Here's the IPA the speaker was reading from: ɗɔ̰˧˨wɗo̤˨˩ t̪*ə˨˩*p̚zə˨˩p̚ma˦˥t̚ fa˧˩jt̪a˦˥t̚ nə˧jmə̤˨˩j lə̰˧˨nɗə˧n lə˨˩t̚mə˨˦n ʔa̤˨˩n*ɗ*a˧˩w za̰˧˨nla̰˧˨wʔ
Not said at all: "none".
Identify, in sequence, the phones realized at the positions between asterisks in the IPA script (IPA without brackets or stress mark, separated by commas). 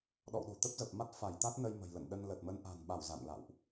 ə˦˥, ɓ